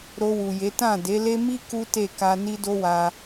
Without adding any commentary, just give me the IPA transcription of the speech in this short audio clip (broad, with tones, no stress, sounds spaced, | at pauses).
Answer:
ɾ o˧ w u˨ j e˨˦ t ã˦˨ d e˨˦ l e˦ m i˦ k u˦ t e˦˨ k a˧ n i˦ d o˦ w a˧